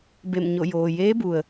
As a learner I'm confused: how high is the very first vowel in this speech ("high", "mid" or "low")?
mid